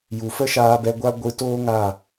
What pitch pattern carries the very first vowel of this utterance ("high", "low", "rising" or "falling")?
low